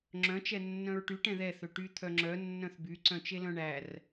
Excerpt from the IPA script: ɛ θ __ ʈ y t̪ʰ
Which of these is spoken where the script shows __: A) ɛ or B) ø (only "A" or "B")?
B